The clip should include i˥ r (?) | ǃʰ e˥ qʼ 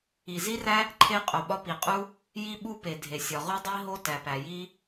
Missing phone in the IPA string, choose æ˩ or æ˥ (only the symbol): æ˥